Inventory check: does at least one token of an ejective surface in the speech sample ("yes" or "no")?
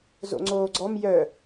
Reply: no